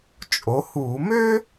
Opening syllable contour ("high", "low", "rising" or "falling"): rising